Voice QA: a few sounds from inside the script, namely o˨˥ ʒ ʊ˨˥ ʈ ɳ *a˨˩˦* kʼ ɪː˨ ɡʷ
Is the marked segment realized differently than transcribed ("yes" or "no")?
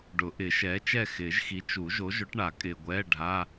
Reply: no